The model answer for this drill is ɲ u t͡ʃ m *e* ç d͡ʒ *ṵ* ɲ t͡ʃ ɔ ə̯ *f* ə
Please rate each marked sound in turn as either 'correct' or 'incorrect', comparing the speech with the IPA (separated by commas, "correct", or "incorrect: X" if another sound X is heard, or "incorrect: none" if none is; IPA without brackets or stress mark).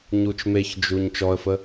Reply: correct, incorrect: u, correct